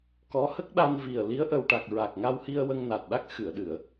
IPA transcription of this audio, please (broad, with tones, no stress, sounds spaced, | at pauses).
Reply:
k ɔ˧˥ h ə˦˥ k̚ ɗ a˧ n v i˨˩ ə̯ l i˧˥ ə̯ ʔ ə˨˩ w ʈ a˨˩ k̚ ɹ a˨˩ k̚ ŋ a˧ w h i˧ ə̯ w ə˧ ŋ n a˨˩ t̚ ɗ a˦˥ k̚ x ɨ˨˩˨ ə̯ ɗ ɨ˨˩˨ ə̯